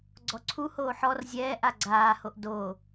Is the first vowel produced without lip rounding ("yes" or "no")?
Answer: no